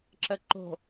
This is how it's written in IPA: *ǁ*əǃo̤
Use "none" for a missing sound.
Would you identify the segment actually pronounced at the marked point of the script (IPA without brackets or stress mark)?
ǁ